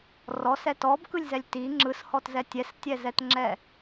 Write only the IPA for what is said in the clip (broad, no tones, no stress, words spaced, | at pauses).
rɔsɛ tɔbkɯlʲzɛlʲ ti ŋ͡ǁɯshɔtzɛ tʲɛstʲɛzɛtŋ͡ǁɛ